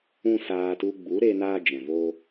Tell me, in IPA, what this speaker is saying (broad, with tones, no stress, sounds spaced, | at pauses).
ũ˦ s aː˧ t u˧ ɡ͡b u˨˦ ɾ e˧ n aː˦ d͡ʒ ɛ̃˨ v oː˦